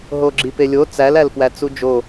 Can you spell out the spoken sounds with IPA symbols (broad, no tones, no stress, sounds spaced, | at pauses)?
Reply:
ɦ o ɡ͡ǁ i p e lʲ o t͡s æ l æ l p w æ t͡s u d͡ʒ o